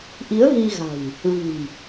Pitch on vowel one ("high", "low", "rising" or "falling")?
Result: rising